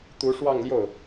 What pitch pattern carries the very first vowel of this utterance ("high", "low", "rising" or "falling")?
rising